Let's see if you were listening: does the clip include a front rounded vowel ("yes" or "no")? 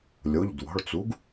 no